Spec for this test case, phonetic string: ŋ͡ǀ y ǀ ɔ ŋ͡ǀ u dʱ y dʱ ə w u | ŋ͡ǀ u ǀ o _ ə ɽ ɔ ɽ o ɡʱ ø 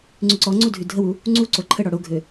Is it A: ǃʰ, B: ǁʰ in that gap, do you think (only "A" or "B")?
A